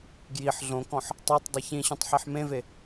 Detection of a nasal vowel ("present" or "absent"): present